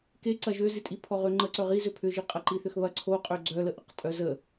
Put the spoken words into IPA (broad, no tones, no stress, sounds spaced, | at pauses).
k e ǀ ɐ ʒ ø z i tʼ i pʰ ɔ ʁ ø ŋ͡ǃ ə ǀ œ ʁ i z ø pʰ ʏ ʒ i qʼ ɐ ǃ i θ ʏ x β ɐ ǀʰ o qʼ ø ɡ͡ǀ œ l ə ʔ ə q tʼ œ z ə